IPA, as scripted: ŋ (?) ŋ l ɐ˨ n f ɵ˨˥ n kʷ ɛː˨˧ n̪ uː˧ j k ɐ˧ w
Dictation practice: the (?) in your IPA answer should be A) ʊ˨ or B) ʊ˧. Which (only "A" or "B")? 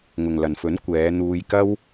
A